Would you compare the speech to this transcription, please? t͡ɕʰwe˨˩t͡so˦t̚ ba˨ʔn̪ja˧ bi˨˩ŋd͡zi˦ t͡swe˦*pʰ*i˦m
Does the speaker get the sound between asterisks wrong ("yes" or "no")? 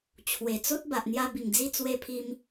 no